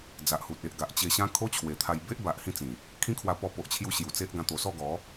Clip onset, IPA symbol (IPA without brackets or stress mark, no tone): d͡z